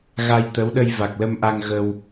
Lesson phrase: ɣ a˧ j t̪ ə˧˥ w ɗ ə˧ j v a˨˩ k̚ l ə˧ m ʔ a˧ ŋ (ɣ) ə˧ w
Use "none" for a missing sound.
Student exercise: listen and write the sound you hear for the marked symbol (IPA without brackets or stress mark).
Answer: ɣ